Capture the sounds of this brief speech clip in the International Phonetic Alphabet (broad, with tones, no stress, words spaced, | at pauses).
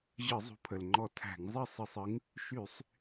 ʑɯ˧˩˧zˤṳ˨˦pʰə˩lŋ͡ǃɔ˧˩ tʰæ̤˧˩˧ŋzˤɯ˥˩sˤɯ˧˩sˤɯ˨˦ŋ | ʃy˧˩˧sˤ